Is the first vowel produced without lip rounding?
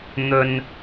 no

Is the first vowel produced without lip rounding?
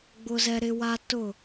no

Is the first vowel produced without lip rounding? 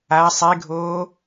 yes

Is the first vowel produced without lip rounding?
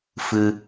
yes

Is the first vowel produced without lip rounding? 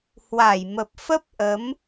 yes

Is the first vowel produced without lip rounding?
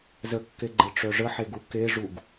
yes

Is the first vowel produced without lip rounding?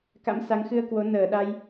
yes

